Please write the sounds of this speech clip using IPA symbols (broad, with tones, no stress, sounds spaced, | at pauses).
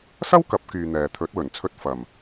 s ɐ˥ w k ɐ˨˥ p̚ k yː˧ n̪ ɛː˨ t̪ʰ ɵ˨˥ t̚ w ɵ˨˩ n t͡sʰ ɵ˧ t̚ f ɐ˨˩ m